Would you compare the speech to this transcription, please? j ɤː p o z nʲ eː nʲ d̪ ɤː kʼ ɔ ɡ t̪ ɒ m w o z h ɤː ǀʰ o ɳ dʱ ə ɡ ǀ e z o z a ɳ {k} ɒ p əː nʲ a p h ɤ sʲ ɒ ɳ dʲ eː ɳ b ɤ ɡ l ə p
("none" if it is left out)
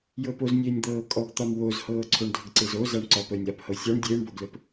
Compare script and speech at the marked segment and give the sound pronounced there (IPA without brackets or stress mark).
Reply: ǀ